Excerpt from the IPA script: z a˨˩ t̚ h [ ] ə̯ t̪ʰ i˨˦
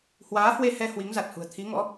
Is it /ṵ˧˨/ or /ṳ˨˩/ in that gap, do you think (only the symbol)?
ṳ˨˩